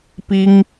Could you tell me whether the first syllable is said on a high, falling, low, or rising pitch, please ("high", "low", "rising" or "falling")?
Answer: high